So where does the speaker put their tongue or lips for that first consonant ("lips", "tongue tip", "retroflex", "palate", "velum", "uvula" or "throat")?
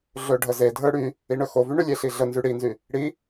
tongue tip